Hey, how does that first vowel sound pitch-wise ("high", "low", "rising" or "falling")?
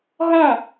falling